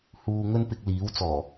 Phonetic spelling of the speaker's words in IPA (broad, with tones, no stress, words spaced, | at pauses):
huː˨ ŋɵ˥npɪ˧k̚liː˨˥wt͡sɔː˨˩